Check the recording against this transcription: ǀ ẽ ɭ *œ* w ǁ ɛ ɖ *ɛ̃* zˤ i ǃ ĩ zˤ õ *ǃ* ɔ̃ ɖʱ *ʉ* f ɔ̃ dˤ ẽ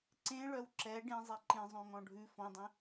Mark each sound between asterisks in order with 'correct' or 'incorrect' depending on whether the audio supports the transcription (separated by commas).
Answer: correct, incorrect, incorrect, correct